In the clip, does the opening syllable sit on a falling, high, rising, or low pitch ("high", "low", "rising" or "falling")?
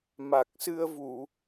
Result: low